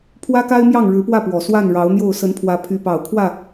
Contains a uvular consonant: no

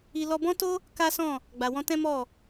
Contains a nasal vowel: yes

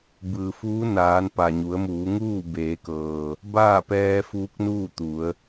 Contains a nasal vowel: no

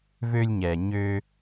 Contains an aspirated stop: no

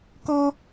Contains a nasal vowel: no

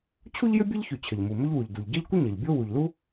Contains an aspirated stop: yes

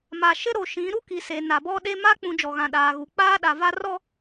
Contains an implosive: yes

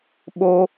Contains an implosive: yes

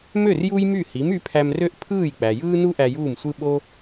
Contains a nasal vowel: no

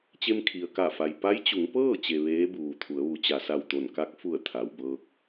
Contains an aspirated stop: yes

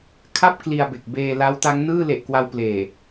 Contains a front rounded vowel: no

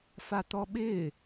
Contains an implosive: yes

